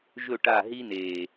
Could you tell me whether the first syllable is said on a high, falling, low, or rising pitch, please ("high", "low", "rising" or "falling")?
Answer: falling